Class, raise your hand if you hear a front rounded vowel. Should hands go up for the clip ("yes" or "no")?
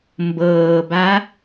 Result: no